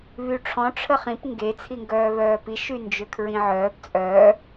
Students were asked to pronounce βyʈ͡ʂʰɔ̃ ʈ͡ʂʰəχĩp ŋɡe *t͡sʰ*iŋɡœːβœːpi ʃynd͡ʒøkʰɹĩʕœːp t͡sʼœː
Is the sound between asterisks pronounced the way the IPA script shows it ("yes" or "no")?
yes